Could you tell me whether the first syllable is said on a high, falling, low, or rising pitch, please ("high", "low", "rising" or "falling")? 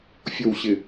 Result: low